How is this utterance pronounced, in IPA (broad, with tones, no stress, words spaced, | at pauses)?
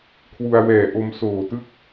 kʰwu˧a̯wɛː˨˩ ʔo˧msoː˨˩ tɯ˥˩k̚